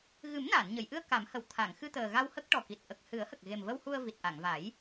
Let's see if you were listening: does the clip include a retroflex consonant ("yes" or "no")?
yes